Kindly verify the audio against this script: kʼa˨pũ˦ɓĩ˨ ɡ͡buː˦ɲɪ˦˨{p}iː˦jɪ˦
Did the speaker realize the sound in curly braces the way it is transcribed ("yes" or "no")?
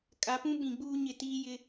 no